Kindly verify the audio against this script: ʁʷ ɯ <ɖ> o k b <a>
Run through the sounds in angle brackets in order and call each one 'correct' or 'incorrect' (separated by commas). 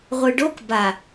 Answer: correct, correct